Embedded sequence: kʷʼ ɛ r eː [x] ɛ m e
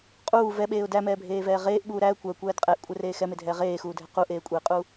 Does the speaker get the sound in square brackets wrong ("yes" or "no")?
no